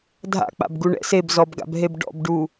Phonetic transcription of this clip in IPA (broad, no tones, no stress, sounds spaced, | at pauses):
dʱ a̰ k͡p a̰ b ɡ u ɳ ɛ̰ s e b z ɔ b ɡ a̰ b ɦ e b ɖ ɔ̰ b ɖ u